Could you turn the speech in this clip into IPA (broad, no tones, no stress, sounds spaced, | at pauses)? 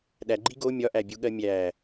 ɗ æ ɡ͡ǃ i ɡ o mʲ ɒ ʔ æ bʲ u ɠ ɜ mʲ æ